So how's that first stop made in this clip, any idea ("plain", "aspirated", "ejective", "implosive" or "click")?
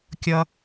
plain